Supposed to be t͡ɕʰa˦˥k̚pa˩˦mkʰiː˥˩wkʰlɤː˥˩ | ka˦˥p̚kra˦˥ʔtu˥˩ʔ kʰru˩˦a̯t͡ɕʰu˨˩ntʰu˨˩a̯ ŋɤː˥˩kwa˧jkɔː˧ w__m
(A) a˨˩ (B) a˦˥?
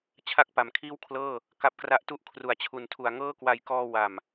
A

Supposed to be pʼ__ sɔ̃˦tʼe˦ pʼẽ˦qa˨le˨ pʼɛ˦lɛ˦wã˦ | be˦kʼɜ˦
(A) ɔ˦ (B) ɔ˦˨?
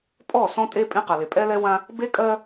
B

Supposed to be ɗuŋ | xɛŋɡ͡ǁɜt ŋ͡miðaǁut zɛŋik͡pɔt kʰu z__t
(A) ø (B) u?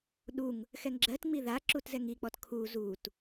B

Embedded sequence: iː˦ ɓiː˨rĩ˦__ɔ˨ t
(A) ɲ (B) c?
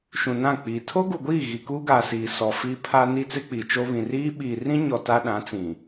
A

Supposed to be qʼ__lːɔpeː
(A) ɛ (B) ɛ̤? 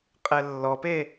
A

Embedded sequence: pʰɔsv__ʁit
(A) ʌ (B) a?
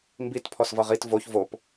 A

